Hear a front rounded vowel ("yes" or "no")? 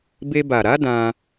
no